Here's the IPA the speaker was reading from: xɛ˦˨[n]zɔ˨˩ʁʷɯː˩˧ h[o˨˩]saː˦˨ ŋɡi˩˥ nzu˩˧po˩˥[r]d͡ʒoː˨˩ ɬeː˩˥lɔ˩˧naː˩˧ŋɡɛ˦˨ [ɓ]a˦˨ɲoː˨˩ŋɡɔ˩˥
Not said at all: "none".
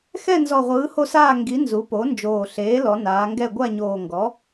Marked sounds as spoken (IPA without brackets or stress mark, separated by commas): n, o˦˨, n, ɡʷ